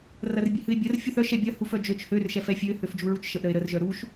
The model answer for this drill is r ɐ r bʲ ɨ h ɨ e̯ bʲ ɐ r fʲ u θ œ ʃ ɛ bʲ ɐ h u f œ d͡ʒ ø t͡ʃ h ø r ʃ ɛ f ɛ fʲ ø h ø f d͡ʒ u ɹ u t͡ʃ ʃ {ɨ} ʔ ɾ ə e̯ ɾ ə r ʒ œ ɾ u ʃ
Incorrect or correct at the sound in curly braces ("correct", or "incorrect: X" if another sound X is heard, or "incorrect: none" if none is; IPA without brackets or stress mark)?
incorrect: ə